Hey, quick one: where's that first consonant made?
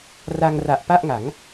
tongue tip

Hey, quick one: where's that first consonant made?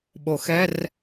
lips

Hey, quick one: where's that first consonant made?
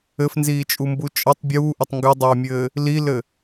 lips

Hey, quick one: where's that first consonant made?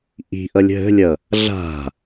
throat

